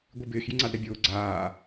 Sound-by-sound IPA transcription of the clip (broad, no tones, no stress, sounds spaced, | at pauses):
ɡʷ i b ɪː x j i ŋ͡ǀ a d ɾ ɛ bʲ ʊː ɡ͡ǀ aː